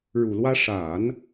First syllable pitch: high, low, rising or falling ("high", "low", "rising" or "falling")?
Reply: low